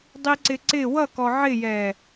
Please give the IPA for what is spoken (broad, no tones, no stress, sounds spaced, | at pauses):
dˤ i ǀ ɪ ǀ ɪ w ʌ k ɔ ʕ ɪ j ɛ